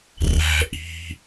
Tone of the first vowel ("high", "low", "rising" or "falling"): low